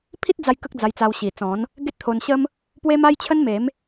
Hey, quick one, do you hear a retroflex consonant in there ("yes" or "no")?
no